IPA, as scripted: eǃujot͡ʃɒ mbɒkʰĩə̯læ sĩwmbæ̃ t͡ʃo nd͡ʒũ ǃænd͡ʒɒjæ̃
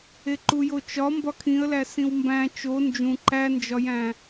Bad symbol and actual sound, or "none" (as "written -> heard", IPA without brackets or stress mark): none